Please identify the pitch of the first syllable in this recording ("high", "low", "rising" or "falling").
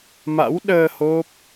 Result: rising